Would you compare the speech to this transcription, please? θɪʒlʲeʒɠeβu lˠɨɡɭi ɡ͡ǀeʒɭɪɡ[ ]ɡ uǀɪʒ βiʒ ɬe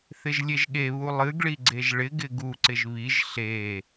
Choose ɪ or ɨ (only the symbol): ɪ